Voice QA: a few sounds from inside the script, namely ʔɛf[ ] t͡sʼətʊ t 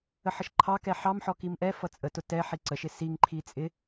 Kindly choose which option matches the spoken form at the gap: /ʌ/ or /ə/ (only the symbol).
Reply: ʌ